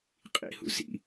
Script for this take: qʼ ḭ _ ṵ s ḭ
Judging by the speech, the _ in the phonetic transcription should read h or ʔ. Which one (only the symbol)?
h